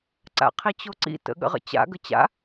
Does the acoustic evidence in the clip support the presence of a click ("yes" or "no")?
yes